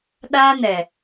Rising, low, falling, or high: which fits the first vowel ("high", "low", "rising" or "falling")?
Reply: high